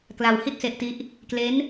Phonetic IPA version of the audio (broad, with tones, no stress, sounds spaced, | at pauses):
k l a˧ w h i˥˩ t̚ s e˦˥ ʔ t i˦˥ ʔ | k l e˦˥ n